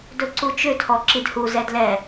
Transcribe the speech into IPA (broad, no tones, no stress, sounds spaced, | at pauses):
d ɵ ǀ u t͡ʃ ʏ tʰ ɔ ǁ i d h u z ɛ d l ɛ